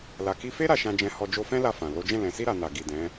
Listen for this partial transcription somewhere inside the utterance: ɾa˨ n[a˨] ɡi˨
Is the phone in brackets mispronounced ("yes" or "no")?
no